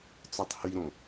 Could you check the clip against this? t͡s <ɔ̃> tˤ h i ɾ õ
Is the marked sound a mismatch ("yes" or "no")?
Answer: yes